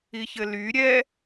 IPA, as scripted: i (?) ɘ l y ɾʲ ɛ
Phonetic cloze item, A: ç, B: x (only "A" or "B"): A